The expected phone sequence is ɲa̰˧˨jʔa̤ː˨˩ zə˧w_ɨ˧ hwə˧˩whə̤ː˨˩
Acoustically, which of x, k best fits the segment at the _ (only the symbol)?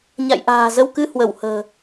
k